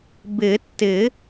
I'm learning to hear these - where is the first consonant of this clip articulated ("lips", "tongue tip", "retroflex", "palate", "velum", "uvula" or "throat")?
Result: lips